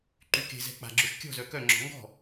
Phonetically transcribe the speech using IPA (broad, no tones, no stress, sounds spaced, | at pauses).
ǃ y k e̤ z ɛ̤ k͡p a̤ ɡ͡ǁ ø ʃ kʲ ɔ̤ z œ k œ ŋ͡ǁ ɔ̤ ŋ ɡ ɔ̤